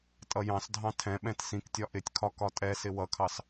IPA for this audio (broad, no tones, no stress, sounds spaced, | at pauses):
tʼ ʌ j ɑ̃ s dʱ ɑ̃ tʰ ɛ̃ ɓ ɛ̃ t s ĩ k tʲ ɒ ʔ ɪ tʲ kʰ ɒ k ɒ tʼ ɛ s ɪ w ʌ kʰ ɑ s